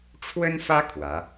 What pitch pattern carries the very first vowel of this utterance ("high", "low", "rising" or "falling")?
high